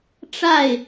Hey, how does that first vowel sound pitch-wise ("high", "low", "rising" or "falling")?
falling